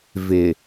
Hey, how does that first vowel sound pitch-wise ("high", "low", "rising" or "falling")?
low